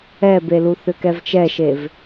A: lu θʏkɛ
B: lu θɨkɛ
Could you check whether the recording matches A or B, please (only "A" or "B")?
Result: A